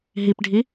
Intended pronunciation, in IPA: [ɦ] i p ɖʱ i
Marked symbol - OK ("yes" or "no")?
yes